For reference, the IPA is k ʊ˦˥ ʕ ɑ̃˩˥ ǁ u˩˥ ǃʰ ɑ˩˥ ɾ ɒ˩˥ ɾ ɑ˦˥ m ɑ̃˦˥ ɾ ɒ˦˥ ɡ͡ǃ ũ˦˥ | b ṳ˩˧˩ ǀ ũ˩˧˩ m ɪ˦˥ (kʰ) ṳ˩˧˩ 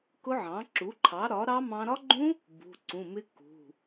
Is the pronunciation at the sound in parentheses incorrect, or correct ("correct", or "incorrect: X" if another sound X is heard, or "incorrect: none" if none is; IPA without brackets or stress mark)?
incorrect: k